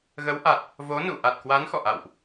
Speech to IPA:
ɣ ə˨˦ w ʔ a˨˩ t̚ | v o˨˦ n ṵ˧˨ ʔ a˨˩ t̚ k w a˨˦ n x ɔ̰˧˨ ʔ a̰˧˨ w ʔ

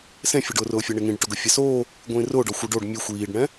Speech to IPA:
s ẽ fʲ o ɖ ʊː r ʊː fʲ ɛ ɳ e ŋ ĩ ɖ ʈ ʊ ɡ ʊ fʲ ɛ s oː | ɡʷ ĩː r ʊː ɖ ɔ xʷ e ɖ o ɖ mʲ e xʷ iː ɖ ɳ ɛ̃

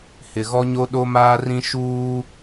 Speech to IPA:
h ɪ˨ ɣ ɔ˦ ɲ o˦ ɗ o˦ m aː˦ r ĩ˦ ʃ uː˦

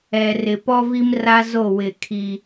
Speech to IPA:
ɛ˨ r ɪ˨ p ɔ˦ v i˦ m r a˦ z o˦˨ w ɪ˦˨ kʰ i˦

